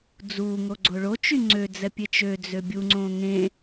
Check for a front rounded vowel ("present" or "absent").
present